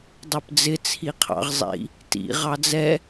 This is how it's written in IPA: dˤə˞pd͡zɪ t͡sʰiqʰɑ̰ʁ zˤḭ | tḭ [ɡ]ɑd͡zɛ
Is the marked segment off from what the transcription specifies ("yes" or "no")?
yes